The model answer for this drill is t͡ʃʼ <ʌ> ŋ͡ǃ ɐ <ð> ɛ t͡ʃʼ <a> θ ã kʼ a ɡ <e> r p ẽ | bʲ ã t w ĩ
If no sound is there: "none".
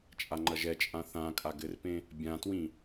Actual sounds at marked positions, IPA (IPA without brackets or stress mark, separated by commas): a, ʒ, ã, ɘ